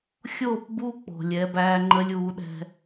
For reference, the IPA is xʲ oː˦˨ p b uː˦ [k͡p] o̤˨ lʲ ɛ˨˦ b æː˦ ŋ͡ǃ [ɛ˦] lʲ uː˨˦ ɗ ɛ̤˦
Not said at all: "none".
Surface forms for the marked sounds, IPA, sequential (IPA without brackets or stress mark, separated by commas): k͡p, ə˦